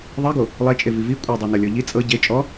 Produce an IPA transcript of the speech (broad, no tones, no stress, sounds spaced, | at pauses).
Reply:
ðˤ e ɡ o | lˠ e t͡ʃʼ e v i v i kʷʼ ɤ dˤ e n ɤ lʲ ɔ ʎ i t͡sʼ ɤ ɟ e t͡ʃʼ ɔ